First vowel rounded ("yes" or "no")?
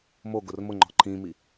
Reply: yes